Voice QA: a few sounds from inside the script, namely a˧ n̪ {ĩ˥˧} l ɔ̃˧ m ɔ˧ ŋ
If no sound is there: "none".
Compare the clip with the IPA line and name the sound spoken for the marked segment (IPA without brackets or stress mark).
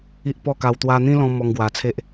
ĩ˦